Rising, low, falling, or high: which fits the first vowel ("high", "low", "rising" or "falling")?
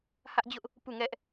high